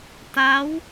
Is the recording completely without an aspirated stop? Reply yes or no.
yes